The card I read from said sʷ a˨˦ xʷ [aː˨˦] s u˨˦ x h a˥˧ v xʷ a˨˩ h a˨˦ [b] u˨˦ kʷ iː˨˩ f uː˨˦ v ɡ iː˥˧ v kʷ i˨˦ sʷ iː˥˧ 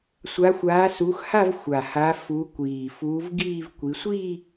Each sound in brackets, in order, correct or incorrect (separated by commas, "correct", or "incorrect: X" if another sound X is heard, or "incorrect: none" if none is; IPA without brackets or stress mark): correct, incorrect: f